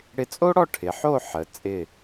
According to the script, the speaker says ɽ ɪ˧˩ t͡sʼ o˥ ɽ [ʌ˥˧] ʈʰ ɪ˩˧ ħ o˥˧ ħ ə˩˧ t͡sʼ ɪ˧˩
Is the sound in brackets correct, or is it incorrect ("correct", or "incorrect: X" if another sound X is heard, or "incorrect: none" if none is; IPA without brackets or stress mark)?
incorrect: ɔ˥˧